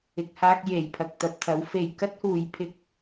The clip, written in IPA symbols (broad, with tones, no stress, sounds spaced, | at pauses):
ɪ˧ k̚ h aː˥ k̚ j e˨˧ j pʰ ɐ˧ k̚ t̪ ɐ˨ p̚ t̪ʰ ɐ˨˥ w f e˨ j k ɐ˥ t̚ h uː˨˥ j pʰ ɪ˧ k̚